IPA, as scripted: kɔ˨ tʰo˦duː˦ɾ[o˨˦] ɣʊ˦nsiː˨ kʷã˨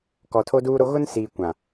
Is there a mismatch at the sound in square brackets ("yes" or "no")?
yes